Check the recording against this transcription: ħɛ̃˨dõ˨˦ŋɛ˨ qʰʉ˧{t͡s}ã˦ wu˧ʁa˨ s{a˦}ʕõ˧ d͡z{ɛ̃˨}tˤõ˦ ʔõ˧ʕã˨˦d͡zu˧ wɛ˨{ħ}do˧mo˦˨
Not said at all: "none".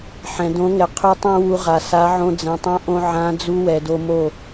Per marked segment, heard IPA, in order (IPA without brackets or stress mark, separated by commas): tˤ, a˨˦, ɛ̃˨, none